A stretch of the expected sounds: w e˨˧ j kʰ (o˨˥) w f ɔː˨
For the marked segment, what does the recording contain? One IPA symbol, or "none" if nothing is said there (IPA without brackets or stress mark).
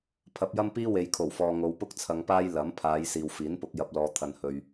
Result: o˨˩